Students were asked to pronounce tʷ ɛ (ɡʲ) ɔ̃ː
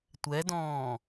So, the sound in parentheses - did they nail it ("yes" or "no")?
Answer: no